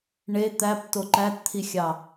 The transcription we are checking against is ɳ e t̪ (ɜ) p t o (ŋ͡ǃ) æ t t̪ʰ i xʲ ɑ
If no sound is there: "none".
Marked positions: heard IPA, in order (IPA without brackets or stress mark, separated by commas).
æ, ǃ